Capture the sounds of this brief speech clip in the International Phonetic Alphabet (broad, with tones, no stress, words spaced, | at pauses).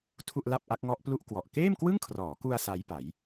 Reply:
tʰu˥˩ʔla˥˩p̚ ʔa˦˥k̚ŋɔ˦˥ʔplu˥˩ʔ kwɔ˨˩ʔ keː˥˩mkwɯ˥˩ŋkʰrɔː˩˦ku˧a̯ sa˦˥jpa˩˦j